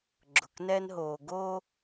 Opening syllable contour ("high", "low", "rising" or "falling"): low